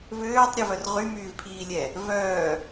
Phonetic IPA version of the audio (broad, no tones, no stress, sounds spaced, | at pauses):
v øː tˤ ɾʲ ɛ v œ r ʁ y m yː v pʰ iː lʲ ɛ | v œː